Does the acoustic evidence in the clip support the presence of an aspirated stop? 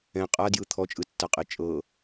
yes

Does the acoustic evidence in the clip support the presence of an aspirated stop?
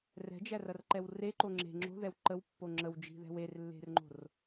no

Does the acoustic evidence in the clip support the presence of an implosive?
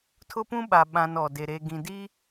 yes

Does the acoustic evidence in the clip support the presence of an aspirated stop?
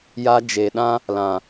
no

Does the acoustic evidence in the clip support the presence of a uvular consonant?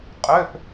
yes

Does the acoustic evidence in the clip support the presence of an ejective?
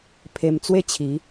no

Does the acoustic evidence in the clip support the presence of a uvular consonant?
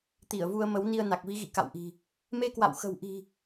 no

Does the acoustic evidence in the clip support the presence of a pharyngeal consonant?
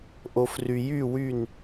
no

